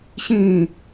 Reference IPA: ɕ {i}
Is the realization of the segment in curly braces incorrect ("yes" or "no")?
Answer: yes